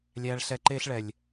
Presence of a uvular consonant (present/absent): absent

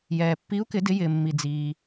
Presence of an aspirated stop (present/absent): absent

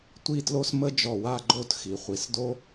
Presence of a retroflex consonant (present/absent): absent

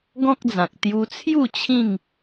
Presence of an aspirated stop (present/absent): present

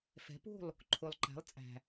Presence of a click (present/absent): present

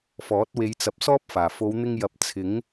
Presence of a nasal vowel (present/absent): absent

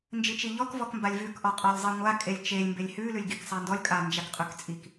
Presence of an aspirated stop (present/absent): absent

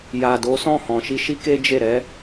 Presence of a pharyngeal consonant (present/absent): absent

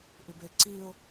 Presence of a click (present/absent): present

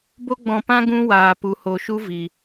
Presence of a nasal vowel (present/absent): present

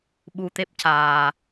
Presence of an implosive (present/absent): present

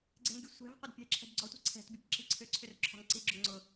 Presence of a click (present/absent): present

